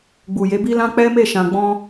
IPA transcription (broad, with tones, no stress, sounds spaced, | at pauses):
ɡ͡b u˨ j e˨˦ b i˦ l ã˦ k͡p ɛ˦ m e˦˨ ʃ ã˨ ɡ͡b ɔ̃˧